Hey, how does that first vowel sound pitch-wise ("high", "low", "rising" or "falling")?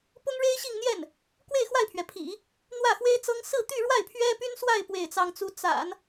high